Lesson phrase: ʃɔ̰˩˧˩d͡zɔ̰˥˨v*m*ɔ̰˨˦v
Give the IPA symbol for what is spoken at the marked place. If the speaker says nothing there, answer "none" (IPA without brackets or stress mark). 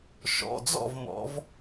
m